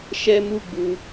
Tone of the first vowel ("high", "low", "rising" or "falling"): high